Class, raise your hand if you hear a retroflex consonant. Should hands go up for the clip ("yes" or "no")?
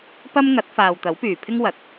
no